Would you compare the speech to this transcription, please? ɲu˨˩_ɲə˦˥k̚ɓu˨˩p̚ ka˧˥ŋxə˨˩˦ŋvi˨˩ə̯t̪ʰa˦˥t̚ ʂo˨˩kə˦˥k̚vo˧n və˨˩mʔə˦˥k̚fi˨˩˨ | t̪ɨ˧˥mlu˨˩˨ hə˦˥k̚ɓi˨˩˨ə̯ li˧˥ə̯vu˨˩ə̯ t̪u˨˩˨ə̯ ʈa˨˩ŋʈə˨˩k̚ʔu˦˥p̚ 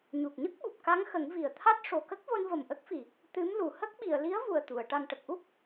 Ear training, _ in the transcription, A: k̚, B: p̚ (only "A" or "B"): A